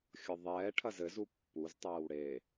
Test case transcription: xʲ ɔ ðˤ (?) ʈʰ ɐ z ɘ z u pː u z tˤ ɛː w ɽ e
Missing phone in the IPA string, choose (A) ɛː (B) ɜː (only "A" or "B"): A